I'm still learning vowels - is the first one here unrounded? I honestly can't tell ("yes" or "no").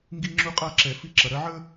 yes